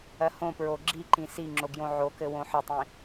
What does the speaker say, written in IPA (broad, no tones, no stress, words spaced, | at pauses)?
ɜhõpɹo ɡ͡ǁiǃĩ siŋ͡ǁo ɡjõʕokɘ wõħɘtˤĩ